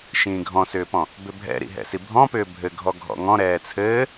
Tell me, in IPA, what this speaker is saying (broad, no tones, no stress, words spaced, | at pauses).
ʃĩːɡʱɔ̃sʏːpɔ̃ | bʏbʱɛ̰ɾḭ ɦɛ̰sibʱɔ̃pʏː bʱɘɡʱɔɡʱɔ̰ ŋɔ̃ ɾɛːt͡sʰɘː